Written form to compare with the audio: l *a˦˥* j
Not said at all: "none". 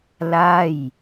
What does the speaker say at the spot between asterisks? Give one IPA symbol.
a˥˩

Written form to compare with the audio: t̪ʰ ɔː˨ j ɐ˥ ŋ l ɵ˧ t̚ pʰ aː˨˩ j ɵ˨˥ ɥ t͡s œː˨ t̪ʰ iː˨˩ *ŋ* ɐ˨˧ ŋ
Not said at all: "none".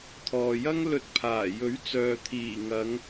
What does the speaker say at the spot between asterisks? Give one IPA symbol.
ŋ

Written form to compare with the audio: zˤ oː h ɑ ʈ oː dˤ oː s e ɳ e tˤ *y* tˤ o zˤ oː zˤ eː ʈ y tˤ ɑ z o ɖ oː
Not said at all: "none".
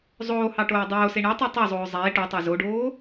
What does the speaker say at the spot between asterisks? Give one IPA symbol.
e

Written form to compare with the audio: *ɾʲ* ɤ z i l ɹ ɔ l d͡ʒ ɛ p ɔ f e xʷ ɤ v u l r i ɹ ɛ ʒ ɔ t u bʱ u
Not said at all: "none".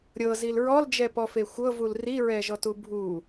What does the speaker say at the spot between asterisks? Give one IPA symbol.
ɾʲ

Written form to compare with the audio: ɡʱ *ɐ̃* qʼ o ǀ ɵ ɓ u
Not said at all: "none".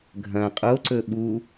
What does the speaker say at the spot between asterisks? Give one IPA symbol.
ɐ̃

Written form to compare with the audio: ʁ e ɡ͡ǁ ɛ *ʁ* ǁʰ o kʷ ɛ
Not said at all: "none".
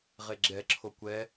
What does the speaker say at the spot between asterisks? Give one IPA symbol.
none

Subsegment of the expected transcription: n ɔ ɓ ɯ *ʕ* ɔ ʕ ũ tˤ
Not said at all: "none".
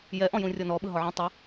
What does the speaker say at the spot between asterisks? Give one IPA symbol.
ɦ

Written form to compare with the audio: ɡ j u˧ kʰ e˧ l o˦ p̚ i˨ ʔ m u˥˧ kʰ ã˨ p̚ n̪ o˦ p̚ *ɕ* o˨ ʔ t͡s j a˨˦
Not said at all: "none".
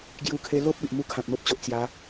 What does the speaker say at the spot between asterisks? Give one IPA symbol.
t͡ɕ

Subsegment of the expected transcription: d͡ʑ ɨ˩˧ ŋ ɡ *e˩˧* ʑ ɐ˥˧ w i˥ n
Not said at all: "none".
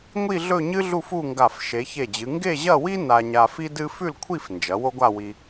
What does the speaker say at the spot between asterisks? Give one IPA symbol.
e˥˧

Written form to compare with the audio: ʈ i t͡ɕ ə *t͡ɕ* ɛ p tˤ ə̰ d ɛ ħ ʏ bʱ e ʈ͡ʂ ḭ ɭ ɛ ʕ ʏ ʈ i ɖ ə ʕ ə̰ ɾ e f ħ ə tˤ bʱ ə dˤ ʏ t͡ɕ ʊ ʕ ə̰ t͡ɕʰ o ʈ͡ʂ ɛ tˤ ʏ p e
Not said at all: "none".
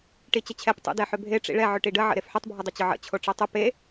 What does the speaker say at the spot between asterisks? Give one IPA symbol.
t͡ɕʰ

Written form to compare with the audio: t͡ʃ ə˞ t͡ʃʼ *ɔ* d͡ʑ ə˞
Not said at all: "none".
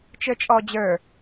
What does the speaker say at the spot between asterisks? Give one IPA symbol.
ɔ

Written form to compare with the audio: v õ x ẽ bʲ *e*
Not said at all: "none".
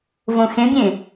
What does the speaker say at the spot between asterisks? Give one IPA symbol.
ẽ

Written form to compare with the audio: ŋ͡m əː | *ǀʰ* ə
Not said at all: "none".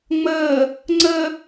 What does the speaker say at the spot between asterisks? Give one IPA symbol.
ŋ͡ǀ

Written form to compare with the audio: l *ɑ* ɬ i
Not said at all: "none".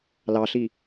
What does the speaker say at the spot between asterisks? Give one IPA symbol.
ɑ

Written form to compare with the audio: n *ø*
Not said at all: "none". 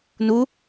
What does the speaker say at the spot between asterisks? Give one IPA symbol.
u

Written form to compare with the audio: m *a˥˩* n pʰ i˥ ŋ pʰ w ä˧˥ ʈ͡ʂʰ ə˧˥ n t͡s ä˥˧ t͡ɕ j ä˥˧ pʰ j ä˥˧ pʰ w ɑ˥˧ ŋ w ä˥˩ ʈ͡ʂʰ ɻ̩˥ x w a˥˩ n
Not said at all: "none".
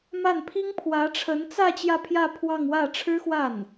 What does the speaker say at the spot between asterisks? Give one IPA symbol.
a˥˩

